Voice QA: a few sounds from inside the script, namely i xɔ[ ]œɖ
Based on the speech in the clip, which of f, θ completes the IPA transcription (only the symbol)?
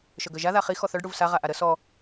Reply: θ